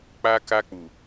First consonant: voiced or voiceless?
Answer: voiceless